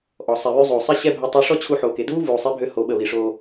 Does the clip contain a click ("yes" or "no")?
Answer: no